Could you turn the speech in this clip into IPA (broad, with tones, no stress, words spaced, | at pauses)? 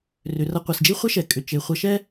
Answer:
rʏ˩rɐ˨qʷɛ˩sd͡ʒi˦ χʷɛ˥ʃɛ˩ kʼʏ˩ t͡ʃe˩ χʷɐ˨ʃɛ˦